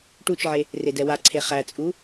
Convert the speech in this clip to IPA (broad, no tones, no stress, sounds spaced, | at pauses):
ʈ u t͡ʃ ʕ e | r e d ɛ w a ǀʰ e χ æ t͡sʼ u